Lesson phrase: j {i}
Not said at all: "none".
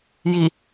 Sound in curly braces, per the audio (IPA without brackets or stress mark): i